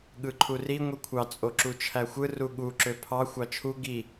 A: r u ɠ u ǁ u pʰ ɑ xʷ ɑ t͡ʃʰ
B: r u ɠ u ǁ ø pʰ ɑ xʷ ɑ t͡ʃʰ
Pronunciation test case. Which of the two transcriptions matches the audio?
B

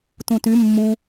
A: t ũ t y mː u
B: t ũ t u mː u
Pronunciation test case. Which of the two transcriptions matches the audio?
A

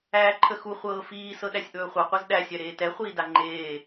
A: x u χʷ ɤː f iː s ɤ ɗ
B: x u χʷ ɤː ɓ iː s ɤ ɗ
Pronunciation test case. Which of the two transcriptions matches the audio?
A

